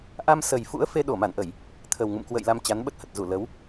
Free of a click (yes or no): yes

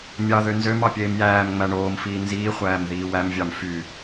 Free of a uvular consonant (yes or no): no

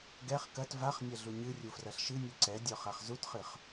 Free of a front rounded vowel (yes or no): yes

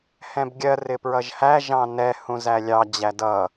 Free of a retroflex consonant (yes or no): yes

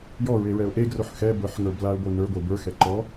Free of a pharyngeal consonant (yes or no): no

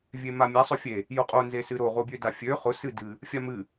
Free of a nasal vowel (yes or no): yes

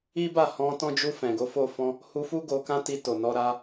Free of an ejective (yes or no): yes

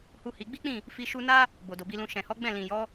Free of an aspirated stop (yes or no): yes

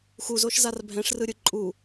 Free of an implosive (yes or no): yes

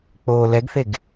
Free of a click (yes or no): yes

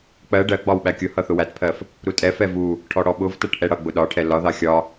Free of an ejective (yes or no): no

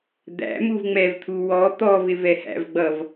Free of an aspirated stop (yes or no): no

